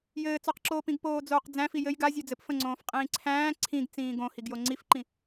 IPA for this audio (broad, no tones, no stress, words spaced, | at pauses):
jɘːt͡sɔqǁoːpĩɡ poːd͡zoːqd͡zæ̃fi jɘj ɡa zʲod͡zɘp fə̃ŋ͡ǀõːf qʼĩːǀʰæ̃ː ǀʰĩɡt͡sĩː ɡõ hiɡjoŋ͡ǀifǃĩ